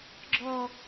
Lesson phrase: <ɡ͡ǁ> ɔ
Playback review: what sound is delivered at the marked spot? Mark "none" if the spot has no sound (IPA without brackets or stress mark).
ɡ͡ǁ